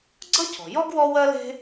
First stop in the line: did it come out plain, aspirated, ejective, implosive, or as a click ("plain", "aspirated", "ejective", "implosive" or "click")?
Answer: click